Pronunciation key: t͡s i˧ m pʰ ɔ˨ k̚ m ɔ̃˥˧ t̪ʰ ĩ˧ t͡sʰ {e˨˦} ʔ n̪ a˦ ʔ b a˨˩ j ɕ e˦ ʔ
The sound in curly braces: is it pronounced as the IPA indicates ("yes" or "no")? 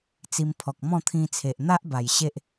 no